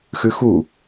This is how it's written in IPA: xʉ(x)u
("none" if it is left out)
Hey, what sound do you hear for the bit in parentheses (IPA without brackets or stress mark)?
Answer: x